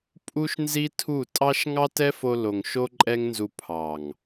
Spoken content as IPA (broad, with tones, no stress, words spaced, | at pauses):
pʼu˦ʃnzi˦tʰu˦˨ tʼɑ˦ʃ ŋɑ˦tɛ˦fo˧ lo˨ŋʃo˦ǃʼɛ˦ŋnzu˧ pʰɑ˨ŋ